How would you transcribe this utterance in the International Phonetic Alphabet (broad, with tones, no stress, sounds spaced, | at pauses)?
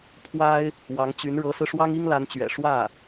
pʰ w a˥ ɪ̯ | w ɑ˧˥ ŋ t͡ɕ y˧˥ n ɻ ɤ˧˥ s ɹ̩˧ ʂ w ɑ˥ ŋ i˥ ŋ l a˧˥ n t͡ɕ ɥ ɛ̰˨˩ ʂ w ä˥˩